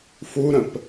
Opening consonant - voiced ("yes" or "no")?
no